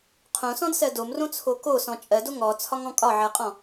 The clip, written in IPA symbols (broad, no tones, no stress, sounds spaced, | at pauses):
qʰ õ s ɔ̃ d s ɜ d o m r õ t͡sʰ o k o s ɔ̃ t͡ʃʼ ɜ d o ŋ ɔ t͡sʰ ɒ ŋ ɔ̃ kʼ ɒ ʕ ɜ qʼ ɔ̃